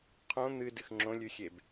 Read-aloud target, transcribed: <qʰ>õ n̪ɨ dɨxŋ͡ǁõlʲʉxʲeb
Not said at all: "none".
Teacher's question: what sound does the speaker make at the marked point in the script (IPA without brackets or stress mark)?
qʰ